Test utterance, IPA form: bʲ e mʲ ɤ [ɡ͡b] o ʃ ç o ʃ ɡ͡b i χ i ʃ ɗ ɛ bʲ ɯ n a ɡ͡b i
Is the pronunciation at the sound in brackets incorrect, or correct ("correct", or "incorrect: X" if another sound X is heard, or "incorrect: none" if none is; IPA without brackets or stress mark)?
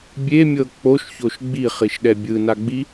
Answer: incorrect: k͡p